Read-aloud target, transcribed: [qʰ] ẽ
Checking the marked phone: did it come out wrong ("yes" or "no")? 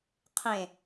no